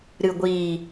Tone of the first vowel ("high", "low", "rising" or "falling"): low